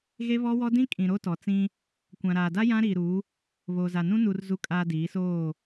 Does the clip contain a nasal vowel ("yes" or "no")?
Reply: yes